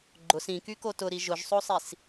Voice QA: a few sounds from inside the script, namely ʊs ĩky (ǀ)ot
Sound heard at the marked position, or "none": k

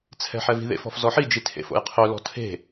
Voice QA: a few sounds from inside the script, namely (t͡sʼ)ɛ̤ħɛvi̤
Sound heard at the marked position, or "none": t͡sʰ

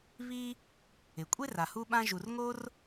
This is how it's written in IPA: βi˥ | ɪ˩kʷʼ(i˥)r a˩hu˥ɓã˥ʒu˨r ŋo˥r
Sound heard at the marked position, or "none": e˥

